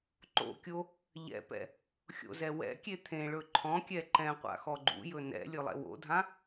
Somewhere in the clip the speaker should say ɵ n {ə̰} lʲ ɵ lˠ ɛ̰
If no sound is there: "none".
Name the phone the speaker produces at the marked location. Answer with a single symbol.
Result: ɛ̰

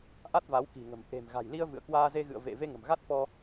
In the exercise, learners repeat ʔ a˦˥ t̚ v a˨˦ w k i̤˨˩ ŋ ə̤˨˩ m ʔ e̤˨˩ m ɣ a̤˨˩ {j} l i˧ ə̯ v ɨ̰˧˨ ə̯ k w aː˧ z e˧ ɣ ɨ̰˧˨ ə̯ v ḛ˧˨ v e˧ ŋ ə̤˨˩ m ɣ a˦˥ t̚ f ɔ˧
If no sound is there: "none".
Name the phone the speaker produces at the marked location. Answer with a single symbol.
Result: j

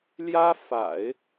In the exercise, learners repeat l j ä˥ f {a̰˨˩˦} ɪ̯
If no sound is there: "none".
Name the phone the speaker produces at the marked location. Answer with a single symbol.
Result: a̰˨˩˦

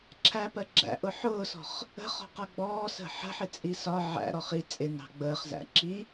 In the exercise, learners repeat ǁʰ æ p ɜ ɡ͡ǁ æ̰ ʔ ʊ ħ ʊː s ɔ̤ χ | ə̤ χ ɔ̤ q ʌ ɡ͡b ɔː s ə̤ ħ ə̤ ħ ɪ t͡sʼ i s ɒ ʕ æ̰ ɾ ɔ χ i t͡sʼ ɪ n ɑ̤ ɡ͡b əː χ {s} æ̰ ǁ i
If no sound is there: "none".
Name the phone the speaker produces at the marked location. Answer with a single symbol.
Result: z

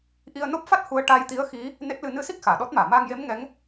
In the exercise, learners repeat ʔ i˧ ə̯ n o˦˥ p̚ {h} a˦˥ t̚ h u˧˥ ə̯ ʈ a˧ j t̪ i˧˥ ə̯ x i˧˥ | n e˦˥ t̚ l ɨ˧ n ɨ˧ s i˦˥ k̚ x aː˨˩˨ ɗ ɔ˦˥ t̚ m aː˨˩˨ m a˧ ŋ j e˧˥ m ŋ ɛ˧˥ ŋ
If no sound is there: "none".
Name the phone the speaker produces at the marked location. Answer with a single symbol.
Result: f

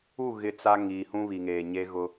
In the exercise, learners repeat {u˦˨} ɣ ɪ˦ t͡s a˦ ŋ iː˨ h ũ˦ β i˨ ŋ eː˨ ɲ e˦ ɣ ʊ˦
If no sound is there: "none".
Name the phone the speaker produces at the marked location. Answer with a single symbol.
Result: u˦˨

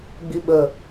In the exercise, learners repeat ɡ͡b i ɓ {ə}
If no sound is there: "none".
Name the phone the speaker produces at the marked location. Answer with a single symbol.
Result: ə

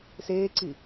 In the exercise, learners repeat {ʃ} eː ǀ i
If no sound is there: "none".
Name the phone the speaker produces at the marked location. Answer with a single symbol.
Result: s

